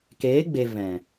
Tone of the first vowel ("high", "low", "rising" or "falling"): rising